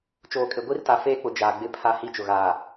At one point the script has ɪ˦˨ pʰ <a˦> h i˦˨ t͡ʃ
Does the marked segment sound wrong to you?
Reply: no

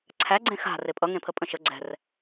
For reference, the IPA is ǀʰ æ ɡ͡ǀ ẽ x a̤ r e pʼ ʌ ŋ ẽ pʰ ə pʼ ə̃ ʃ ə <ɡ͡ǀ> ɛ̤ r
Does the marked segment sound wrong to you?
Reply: no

